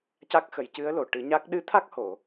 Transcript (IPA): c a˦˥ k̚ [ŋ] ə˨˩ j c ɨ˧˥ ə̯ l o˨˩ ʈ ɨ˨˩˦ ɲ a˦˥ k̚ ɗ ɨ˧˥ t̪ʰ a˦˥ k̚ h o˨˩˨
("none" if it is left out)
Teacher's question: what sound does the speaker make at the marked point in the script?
x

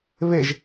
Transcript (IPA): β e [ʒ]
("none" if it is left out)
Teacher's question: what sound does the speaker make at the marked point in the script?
ʒ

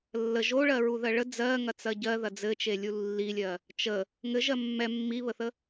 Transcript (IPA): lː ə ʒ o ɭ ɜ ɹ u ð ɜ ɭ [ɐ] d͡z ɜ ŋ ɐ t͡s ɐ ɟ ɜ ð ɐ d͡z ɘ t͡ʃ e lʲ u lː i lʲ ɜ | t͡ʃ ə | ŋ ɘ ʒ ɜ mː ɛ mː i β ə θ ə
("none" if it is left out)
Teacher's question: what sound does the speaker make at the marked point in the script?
ə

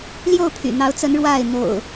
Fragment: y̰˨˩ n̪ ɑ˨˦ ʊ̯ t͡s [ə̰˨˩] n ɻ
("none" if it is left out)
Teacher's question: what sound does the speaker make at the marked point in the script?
ə˨˦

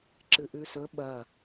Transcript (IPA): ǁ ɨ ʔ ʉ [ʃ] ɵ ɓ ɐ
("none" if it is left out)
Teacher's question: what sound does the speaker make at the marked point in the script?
s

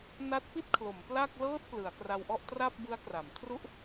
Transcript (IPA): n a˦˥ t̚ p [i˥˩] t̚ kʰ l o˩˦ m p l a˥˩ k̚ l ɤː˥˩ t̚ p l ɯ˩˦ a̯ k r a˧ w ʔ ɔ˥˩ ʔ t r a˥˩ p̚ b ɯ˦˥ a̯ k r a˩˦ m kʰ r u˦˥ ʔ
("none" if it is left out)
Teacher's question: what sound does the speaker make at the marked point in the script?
i˥˩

